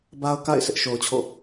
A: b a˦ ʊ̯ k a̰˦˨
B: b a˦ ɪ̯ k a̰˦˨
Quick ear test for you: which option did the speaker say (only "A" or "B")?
A